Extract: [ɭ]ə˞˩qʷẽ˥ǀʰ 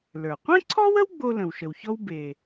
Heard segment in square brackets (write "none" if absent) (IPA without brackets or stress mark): l